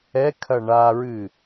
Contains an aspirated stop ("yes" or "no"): yes